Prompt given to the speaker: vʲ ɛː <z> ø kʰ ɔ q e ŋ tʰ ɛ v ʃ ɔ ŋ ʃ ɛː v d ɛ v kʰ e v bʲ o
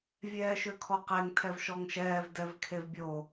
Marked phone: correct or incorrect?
incorrect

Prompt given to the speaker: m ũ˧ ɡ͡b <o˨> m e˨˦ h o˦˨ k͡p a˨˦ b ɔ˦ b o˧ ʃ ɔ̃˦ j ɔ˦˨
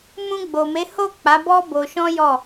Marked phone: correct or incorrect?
correct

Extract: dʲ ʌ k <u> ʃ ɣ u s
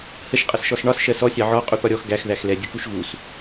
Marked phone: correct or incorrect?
correct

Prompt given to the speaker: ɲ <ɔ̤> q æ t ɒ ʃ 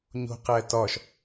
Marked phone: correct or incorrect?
incorrect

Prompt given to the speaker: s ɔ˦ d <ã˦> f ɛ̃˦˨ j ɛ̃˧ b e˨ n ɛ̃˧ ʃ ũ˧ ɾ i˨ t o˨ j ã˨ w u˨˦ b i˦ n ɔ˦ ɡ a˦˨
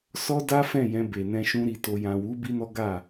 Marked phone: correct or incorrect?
incorrect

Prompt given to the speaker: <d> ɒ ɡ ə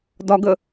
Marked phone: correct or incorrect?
correct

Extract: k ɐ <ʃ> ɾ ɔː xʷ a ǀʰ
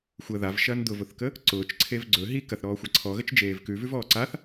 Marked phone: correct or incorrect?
incorrect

